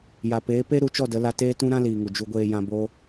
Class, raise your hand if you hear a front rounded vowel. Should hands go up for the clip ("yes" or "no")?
no